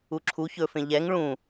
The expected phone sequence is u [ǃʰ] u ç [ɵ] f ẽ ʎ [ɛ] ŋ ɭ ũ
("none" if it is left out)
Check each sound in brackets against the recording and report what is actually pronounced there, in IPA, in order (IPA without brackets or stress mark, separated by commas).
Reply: ǁʰ, ɵ, ɛ